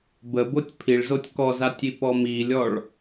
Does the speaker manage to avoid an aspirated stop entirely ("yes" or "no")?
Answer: no